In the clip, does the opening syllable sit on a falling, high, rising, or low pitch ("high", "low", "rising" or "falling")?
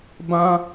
high